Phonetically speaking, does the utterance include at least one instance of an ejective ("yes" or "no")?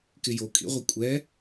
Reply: yes